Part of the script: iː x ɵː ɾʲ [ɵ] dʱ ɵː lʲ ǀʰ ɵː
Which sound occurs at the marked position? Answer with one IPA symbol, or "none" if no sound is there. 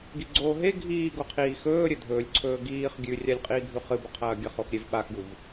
ɵ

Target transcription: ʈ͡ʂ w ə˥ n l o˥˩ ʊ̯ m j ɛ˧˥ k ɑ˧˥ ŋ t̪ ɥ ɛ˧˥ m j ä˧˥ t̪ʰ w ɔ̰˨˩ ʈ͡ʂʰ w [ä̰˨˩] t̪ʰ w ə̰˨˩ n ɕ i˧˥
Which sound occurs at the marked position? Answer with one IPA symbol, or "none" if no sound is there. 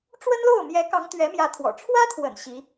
ä˥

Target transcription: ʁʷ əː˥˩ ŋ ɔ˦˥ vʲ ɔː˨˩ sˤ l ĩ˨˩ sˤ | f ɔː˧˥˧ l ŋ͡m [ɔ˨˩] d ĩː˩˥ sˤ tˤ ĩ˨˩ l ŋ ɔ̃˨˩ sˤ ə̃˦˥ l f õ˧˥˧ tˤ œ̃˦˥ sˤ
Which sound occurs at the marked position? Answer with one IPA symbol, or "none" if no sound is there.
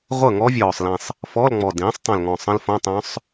ɔ˨˩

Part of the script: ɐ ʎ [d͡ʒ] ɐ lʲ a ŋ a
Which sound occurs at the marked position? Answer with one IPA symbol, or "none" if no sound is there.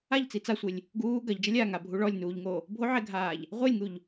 d͡ʒ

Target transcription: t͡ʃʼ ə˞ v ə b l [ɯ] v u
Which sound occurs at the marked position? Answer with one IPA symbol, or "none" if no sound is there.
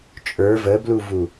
u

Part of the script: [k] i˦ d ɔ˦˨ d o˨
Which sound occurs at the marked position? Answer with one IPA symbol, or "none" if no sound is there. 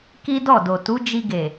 k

